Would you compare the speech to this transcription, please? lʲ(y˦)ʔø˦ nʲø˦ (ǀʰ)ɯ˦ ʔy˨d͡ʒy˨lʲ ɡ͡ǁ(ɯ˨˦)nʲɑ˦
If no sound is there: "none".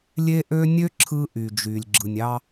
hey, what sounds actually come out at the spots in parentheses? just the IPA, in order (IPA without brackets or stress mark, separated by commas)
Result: e˦, ǁʰ, ɯ˨